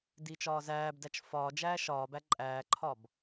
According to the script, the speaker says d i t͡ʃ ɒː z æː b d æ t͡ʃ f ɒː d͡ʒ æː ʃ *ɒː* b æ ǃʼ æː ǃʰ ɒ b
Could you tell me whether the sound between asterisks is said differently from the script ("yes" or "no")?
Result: no